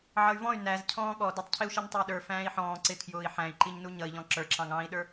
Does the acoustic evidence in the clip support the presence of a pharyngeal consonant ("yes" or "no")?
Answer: yes